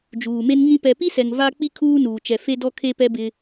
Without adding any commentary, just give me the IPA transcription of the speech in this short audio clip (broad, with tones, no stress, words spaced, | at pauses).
d͡ʒuː˨me˦n ŋĩ˦ pɛ˨pi˦sɛ˨ŋ va˦k͡pi˦ kʰuː˦nuː˨t͡ʃɛ˨ fe˦dɔ˦ kʰe˦pɛ˦bɪ˦